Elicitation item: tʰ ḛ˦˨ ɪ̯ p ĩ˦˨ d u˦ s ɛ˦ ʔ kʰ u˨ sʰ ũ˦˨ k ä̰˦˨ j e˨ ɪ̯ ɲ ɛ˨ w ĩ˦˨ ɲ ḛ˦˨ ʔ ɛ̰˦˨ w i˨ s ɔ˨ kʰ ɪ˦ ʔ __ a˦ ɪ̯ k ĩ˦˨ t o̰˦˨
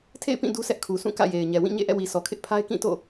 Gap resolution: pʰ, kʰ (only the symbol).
pʰ